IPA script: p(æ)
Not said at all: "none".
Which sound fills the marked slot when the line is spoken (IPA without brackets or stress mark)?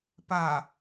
a